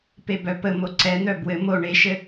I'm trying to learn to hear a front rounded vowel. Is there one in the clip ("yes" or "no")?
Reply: yes